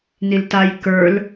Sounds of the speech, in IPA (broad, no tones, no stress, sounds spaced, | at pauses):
n i l t a j k ə˞ l